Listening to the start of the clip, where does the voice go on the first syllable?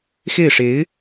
falling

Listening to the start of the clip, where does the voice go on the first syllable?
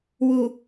low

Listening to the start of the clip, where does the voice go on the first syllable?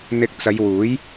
rising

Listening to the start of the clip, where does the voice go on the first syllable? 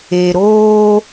low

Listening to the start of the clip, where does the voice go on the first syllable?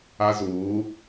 high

